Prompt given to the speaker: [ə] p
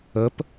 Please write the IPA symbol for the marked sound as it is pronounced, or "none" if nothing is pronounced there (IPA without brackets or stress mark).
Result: ə